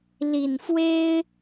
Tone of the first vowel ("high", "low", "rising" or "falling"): low